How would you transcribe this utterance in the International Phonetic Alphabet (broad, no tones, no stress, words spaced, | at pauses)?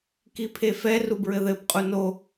kipʰefɛ rubɹɘðɘb qʼuno